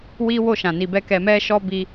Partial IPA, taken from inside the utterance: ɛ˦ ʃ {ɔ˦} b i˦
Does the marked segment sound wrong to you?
no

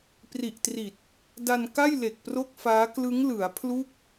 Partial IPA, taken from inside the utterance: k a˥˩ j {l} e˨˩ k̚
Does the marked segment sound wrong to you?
no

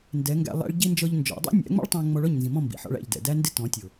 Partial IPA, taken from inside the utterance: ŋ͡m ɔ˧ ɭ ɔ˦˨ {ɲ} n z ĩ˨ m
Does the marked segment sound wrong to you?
no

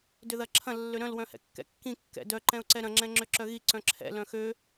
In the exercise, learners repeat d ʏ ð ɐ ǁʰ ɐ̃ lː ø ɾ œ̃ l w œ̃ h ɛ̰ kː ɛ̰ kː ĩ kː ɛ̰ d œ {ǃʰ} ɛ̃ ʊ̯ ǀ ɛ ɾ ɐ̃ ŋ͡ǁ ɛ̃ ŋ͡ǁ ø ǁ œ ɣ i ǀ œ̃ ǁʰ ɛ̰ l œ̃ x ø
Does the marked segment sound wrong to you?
yes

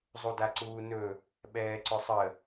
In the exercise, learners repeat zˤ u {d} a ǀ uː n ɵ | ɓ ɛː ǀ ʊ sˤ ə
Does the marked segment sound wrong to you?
no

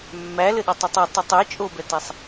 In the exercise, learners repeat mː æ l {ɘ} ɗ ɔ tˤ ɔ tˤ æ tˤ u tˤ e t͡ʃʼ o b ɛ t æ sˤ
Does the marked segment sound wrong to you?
no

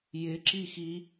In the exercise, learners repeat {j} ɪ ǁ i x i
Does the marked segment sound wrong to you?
no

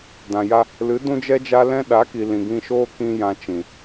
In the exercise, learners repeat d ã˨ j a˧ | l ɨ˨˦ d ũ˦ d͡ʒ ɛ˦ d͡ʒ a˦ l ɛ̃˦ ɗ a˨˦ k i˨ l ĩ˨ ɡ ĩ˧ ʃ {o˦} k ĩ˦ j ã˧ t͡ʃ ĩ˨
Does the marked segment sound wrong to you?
yes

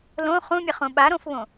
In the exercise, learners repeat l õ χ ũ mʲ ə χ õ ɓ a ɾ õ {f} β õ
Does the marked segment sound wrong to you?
no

